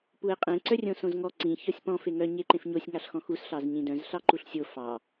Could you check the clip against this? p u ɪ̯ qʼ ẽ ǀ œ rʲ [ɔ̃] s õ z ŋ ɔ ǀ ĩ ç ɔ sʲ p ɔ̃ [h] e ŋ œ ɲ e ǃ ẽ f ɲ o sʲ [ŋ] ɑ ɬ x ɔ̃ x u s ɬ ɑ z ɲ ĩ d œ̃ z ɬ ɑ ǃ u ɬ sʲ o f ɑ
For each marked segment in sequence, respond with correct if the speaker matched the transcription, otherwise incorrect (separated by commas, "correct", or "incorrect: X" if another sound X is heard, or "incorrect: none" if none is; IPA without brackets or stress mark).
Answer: incorrect: õ, incorrect: f, correct